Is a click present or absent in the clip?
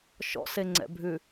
present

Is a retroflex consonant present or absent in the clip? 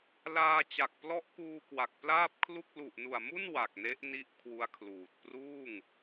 absent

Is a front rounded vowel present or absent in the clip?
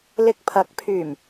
present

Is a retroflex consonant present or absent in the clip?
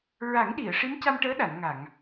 present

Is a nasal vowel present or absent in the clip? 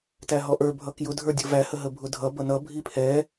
absent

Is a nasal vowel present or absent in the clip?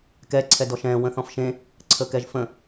present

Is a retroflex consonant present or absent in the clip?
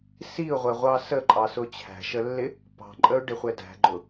present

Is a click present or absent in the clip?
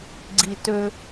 present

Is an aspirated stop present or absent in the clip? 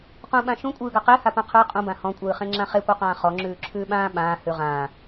present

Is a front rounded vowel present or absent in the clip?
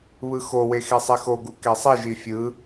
absent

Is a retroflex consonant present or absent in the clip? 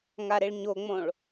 present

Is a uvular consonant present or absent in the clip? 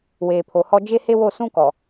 absent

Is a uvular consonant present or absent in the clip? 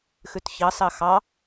absent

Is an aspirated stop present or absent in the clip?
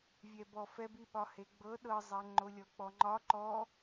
absent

